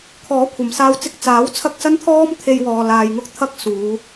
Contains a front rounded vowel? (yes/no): no